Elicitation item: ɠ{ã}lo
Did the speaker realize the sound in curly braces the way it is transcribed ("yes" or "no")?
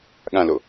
yes